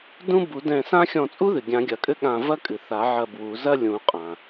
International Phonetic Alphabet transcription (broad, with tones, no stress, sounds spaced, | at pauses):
d ũ˥ b u˨˩˦ d ɛ̃˧˩ s ã˥ xʲ ɔ̃˧˩ t͡sʼ u˥ ð ɨ˩ ɡʲ ã˨˩˦ ɡʲ ɐ˨˩˦ kʼ ɘ˥ ɠ ã˧˩ v ɐ˥ kʼ ɨ˩ θ a˨˩˦ ʕ ɐ˧˩ b w u˨˩˦ z ɐ˥ lʲ ũ˨˩˦ qʼ ã˩